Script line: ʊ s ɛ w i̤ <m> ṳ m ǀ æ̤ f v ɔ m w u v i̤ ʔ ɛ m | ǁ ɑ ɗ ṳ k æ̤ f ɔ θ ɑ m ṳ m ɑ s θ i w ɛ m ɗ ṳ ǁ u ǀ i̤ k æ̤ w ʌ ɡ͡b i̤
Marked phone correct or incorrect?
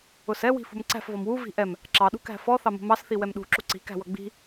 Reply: incorrect